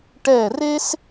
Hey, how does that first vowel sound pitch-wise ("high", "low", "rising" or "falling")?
falling